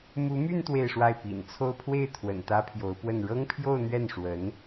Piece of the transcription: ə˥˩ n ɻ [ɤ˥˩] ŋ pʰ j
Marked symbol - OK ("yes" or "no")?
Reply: no